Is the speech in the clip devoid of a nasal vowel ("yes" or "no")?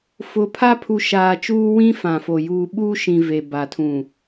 no